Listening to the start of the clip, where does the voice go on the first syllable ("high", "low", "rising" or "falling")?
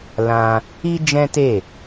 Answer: high